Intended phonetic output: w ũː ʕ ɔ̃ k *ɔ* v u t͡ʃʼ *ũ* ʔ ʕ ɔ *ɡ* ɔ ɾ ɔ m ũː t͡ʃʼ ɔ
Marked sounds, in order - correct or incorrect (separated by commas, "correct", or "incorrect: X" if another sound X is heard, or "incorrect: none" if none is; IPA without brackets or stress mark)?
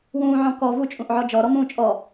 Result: correct, correct, incorrect: d͡ʒ